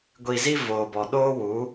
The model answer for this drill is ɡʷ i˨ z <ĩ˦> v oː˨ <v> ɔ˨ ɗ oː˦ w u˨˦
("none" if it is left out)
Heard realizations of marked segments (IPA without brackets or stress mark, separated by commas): i˦, b